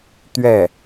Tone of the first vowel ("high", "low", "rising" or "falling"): falling